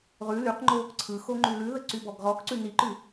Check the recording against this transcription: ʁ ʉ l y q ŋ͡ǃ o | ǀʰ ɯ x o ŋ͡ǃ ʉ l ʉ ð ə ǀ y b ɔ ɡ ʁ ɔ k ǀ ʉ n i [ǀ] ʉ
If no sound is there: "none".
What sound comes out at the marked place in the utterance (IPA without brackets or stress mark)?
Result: ǃ